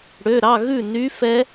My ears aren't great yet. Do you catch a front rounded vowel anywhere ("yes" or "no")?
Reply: yes